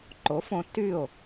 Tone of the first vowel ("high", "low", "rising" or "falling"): rising